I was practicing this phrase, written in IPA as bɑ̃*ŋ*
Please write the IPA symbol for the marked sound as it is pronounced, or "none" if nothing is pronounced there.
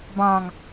ŋ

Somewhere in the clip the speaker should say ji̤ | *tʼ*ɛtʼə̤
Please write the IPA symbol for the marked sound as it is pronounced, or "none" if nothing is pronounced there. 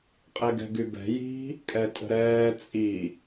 kʼ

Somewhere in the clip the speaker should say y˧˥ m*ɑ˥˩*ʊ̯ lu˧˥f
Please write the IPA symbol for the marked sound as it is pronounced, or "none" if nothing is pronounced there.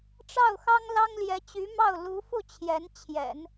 ɑ˥˩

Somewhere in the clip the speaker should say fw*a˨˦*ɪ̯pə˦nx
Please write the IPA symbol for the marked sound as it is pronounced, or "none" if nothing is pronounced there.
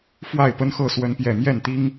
a˥˨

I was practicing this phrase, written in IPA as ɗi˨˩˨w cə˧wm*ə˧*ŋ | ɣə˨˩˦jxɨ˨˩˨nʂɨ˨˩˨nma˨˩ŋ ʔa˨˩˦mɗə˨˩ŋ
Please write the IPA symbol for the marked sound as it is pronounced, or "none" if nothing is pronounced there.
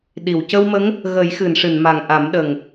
ə˧˥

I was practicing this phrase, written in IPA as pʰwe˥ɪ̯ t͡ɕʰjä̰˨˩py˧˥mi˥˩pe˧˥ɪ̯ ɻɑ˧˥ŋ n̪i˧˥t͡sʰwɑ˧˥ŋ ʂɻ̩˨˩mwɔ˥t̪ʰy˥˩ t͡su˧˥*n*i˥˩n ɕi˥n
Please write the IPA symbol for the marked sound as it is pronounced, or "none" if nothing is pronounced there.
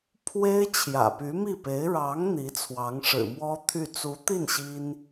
t̪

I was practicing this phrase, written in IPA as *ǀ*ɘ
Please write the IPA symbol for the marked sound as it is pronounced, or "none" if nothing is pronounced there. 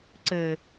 ǀ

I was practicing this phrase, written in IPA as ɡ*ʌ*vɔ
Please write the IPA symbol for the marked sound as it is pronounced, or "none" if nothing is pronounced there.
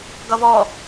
ʌ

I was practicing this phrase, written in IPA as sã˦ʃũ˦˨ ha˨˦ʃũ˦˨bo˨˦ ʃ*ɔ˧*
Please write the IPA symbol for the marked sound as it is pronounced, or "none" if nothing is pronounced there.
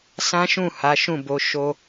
o˧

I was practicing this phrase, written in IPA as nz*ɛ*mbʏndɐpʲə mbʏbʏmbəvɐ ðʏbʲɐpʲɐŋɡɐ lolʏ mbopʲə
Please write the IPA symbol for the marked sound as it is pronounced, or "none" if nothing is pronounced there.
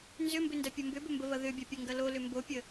ʏ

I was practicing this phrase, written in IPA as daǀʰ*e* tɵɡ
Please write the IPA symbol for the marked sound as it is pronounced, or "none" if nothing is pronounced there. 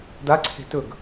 e̤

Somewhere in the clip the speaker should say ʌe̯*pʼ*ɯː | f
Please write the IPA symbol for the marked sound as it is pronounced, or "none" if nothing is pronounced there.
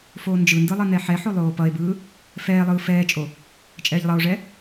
b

